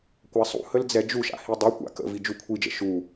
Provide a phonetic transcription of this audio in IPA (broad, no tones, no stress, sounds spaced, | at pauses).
kʷ a sˤ ṵ h ə l d͡z ɛ d͡ʒ u ʃ a̰ h i dˤ i kʷ a̰ k ə̰ v i d͡ʒ u kʷʰ i d͡ʒ ə̰ ʃ u